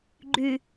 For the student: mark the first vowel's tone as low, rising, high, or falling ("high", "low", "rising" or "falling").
low